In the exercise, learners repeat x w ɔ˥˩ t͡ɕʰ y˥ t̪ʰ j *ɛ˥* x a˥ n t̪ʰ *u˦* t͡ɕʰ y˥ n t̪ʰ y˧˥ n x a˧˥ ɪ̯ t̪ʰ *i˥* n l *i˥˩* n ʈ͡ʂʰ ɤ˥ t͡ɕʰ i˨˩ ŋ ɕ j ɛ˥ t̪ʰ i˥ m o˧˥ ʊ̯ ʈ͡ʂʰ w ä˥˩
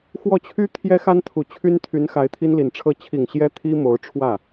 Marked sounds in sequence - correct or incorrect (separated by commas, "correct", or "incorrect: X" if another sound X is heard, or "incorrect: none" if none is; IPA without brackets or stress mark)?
correct, incorrect: u˨˩, correct, incorrect: i˨˩